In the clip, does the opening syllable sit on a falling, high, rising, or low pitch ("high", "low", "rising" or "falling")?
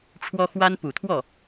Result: high